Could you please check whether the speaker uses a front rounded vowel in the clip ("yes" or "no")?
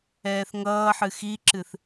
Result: no